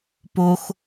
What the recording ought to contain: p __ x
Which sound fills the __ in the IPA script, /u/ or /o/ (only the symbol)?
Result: o